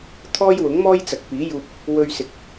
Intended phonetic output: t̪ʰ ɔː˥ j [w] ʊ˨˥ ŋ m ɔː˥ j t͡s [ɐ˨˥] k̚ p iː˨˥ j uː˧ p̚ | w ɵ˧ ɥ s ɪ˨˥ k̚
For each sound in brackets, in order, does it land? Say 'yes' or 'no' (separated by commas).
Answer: yes, no